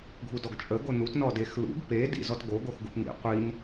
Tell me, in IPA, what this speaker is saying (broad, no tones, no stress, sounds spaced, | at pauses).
ɡʱ u d ɔ ɡ t͡ʃʼ ə ɡ o n u t n ɔ d e x l ṵ ɡ p e d ḭ z ɔ t ɡ o ɡ o x ɡ u p n ḭ qʷ i n